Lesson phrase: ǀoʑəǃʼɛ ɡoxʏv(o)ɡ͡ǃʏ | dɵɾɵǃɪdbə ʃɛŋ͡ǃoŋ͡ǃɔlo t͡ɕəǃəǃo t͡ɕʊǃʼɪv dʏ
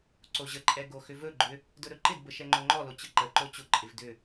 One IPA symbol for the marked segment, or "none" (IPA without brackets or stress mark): ɵ